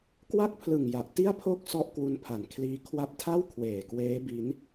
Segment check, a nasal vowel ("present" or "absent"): absent